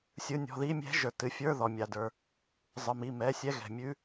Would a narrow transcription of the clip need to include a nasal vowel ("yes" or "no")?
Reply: no